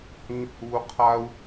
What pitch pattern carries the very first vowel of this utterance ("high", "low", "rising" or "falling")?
high